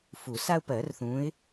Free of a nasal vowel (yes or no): no